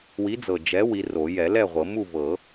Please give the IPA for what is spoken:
wi˨˥d͡zɤ˨˩ d͡ʒɛ˨˥ wi˨˥ro˨˩˦ jɛ˨˩˦lɛ˥˨ʁʷɤ˨˩˦mu˥˨ vɤ˨˩˦

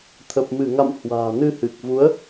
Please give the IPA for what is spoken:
t̪ʰə˨˩p̚mɨ˧˩ŋa̰˧˨m hwa̤ː˨˩nɨ˧ hɨ˨˩k̚vu˨˦ə̯

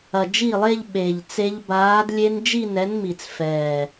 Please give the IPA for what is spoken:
ɐ˨˩d͡ʒi˥˩lˠe˥˧ʎ ɓe˨˩ʎt͡se˦˥ʎ baː˨˥d lʲe˦˥n d͡ʒi˥˧nɛ˨˥nmi˨˩t͡sfɛː˨˩

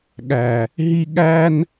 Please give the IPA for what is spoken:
ɠæ˨ | ɦi˦ ɠæ˦n

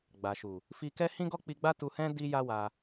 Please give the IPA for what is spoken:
ɡ͡ba˨ʃu˨ | fi˧kɛ˦ hĩ˦ɡɔ˦k͡pi˧ɡ͡ba˦ tu˧hɛ̃˦ di˦ja˦ wa˧

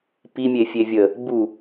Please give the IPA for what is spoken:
pi mʲefʲevʲə | bu

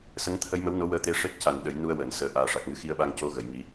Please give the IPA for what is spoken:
sə˧˥ŋt̪ʰə˧˥jmə˧˥wno˧˥ wəː˧t̪e˧˥ ʂe˦˥t̚ca˨˩n ɗə˨˩˦jnu˧ə̯ wəː˨˩˨nsəː˨˩ ʔaː˨˩ʂa˨˩k̚ŋɨ˧˥xi˧˥ə̯ ɓa˧ŋco˧˥ɣə˨˩˨j ŋi˨˩˦

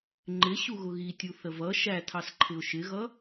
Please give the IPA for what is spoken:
ŋ͡ǃɪ ɕuɣʊɣitʲu θəvʌ ʃætʰɑsǃʰɪʊ̯ ʃɪɣʌ

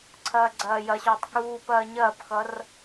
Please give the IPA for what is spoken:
ǀʰɐːɡ͡ǀɐːjɐɕoːtˤ kuːpɐː ɲɐːpxʌr

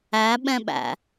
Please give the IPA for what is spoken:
æɓɛ̃ɓæ̰

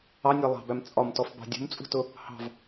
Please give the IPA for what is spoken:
ɑnʲæ lˠɑ̤bæm t͡sʼɒmtɔfbɑ̤ dʲṳmt͡sʼṳtʊ | hɑ̤v

